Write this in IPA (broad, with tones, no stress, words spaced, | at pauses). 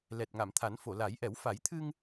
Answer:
lɛ˨˩t̚ŋa˨˩˨mt̪ʰa˨˩˦n fo˨˩˨la˨˩˦j ʔɛ˨˩˦w fa˨˩˦jt̪ʰɨ˧ŋ